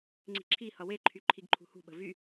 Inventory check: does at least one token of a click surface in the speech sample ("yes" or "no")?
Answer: yes